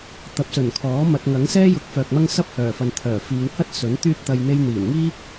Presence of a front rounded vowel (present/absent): present